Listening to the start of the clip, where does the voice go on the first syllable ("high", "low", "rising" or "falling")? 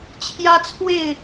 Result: high